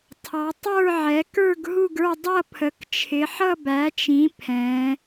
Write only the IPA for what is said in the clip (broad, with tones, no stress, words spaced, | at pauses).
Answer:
tʰɑ˨˦ tˤə˞˥˧ ʕɛ˨˦kə˞˥˧ɡ ɦu˥˧ɡə˞˥˧ dˤʌ˥˧pʰə˨˦kt͡ʃʰɪ˨˦ ħʌ˥˧ bæ˨˦t͡ʃĩ˨˦ pʰɛ̃˨˦